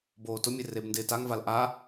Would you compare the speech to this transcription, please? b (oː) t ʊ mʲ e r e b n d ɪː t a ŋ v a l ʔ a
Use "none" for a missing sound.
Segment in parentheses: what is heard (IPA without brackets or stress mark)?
oː